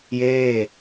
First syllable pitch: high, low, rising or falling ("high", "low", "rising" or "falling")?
falling